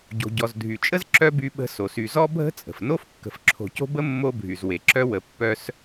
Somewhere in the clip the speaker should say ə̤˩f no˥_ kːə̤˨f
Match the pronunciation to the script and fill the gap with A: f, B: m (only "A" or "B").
A